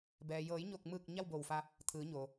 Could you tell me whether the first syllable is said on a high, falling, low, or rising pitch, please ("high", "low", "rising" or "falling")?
low